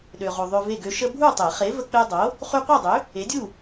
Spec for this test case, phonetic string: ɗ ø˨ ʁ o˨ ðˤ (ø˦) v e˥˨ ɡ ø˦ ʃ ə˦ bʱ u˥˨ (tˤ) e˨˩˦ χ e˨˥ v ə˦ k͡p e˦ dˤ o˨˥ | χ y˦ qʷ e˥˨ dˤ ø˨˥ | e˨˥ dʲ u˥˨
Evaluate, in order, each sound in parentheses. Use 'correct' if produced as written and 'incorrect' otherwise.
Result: correct, correct

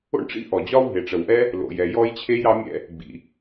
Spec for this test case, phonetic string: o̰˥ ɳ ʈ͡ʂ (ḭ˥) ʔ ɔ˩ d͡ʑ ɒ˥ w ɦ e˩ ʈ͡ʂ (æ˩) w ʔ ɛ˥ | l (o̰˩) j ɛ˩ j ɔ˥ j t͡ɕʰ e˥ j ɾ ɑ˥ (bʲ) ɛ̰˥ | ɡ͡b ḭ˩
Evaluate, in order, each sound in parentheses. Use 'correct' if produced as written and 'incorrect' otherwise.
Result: correct, incorrect: ə˩, correct, incorrect: mʲ

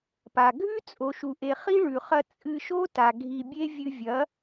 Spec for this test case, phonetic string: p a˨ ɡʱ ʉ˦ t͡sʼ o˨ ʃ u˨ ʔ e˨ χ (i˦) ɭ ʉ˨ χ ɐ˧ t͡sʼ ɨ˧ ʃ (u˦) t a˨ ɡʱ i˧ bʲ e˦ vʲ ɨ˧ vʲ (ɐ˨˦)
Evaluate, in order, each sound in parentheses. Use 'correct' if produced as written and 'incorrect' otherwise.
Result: correct, incorrect: o˦, correct

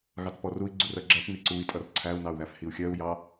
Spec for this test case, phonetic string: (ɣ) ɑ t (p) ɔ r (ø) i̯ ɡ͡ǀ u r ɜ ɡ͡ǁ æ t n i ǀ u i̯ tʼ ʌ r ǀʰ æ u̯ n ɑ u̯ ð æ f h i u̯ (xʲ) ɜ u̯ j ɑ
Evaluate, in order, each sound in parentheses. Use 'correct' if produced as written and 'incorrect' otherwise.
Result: correct, correct, incorrect: u, correct

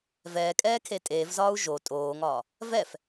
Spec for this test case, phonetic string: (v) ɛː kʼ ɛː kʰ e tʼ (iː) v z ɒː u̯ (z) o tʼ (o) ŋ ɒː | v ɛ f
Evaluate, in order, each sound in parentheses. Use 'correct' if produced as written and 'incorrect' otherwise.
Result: correct, incorrect: eː, incorrect: ʒ, incorrect: oː

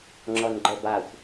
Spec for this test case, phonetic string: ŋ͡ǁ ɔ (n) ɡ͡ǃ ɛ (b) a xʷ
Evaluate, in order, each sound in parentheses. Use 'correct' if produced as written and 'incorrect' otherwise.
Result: correct, correct

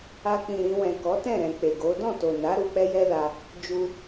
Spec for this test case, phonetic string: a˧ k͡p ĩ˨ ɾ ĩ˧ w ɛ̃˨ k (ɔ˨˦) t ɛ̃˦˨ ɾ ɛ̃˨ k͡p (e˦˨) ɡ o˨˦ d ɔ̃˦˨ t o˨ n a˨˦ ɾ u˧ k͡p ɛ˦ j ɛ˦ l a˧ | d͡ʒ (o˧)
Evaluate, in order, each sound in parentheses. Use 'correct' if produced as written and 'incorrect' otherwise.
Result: correct, incorrect: e˨, incorrect: u˧

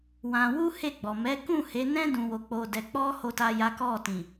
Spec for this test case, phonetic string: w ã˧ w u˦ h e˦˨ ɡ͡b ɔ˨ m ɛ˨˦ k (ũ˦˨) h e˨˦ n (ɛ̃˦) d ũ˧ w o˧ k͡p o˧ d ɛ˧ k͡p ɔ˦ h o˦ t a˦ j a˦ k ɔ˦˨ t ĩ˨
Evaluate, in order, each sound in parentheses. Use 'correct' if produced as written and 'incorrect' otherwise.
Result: correct, correct

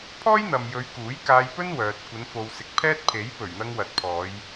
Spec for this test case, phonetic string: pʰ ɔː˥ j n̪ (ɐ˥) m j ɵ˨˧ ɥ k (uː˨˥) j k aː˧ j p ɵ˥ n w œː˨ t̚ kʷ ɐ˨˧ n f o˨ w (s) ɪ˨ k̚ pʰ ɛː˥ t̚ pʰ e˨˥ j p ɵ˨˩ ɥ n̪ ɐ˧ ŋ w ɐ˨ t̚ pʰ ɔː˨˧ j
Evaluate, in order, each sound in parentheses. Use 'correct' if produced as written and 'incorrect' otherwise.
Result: incorrect: ɐ˨, correct, correct

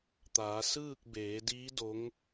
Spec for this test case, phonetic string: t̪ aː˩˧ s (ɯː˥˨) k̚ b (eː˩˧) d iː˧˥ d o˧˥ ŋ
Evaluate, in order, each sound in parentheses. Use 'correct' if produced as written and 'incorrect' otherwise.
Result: correct, correct

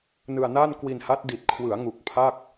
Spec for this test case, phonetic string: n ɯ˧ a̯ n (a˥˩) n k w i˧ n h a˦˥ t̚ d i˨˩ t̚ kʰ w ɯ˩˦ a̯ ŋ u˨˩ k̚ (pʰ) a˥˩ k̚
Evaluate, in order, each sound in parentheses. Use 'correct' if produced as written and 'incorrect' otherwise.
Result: correct, correct

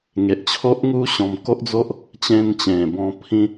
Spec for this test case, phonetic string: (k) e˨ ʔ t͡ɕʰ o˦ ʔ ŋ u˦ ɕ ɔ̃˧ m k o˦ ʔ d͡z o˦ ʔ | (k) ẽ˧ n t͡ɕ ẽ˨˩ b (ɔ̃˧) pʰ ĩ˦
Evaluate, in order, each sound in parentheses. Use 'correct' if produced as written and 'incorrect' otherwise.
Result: incorrect: ŋ, incorrect: t͡ɕ, correct

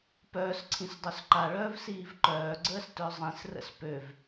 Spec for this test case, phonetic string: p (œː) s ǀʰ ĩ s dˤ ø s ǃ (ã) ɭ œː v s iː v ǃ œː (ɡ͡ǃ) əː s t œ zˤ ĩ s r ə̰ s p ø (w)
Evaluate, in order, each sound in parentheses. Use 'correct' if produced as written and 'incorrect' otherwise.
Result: correct, incorrect: a, incorrect: ɡ͡ǀ, incorrect: v

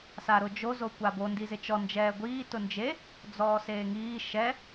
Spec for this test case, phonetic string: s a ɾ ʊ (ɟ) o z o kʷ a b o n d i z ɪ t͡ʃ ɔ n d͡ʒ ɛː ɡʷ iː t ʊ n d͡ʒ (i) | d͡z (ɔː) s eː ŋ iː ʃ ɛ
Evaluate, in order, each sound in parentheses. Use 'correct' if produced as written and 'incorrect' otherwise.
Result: incorrect: d͡ʒ, incorrect: e, correct

